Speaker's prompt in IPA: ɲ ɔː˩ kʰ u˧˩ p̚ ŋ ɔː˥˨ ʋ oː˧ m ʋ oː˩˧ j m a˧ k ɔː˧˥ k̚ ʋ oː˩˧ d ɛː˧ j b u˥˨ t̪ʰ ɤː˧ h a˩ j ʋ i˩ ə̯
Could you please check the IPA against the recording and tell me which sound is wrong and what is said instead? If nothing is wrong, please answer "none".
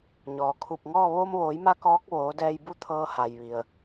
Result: none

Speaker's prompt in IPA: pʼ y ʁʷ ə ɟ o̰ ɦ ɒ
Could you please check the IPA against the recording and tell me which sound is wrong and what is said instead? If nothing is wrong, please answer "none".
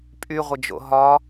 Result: ɟ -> d͡ʒ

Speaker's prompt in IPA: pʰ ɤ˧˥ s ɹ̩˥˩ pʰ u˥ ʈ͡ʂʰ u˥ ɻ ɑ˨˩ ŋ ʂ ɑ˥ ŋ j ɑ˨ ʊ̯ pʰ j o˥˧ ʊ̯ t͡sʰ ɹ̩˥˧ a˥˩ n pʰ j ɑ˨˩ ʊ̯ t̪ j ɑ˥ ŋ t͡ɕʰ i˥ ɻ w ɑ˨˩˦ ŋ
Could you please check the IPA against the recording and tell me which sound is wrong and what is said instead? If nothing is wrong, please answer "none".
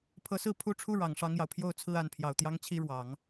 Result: none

